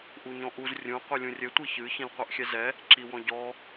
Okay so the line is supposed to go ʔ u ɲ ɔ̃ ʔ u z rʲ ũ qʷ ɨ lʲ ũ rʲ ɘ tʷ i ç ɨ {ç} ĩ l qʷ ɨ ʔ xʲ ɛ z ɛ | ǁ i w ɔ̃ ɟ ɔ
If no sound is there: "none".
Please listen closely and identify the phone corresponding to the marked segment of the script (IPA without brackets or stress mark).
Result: ç